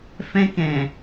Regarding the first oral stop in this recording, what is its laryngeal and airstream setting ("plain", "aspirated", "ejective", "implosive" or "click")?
plain